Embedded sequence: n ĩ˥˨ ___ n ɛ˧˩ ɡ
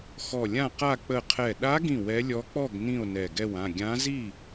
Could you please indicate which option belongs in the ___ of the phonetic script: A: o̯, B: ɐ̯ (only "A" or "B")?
A